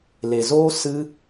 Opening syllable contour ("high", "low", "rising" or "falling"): low